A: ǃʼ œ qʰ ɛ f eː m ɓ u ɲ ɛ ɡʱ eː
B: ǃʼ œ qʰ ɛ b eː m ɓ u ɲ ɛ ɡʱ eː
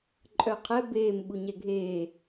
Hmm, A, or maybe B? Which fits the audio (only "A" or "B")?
B